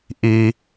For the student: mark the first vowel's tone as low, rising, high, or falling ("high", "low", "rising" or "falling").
low